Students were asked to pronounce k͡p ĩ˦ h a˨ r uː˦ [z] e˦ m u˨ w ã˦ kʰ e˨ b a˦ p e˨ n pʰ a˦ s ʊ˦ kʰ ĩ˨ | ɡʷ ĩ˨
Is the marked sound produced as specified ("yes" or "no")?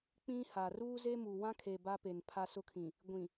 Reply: yes